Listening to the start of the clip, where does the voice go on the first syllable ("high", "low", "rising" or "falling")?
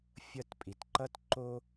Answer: high